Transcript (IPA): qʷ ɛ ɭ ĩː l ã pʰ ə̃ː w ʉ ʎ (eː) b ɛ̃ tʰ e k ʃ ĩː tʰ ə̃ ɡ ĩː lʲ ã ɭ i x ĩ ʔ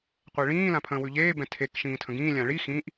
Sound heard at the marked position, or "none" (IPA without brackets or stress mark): eː